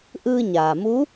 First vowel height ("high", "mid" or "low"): high